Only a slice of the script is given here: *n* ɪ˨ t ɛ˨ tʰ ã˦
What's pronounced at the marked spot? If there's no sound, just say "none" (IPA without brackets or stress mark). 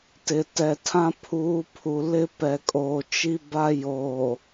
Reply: t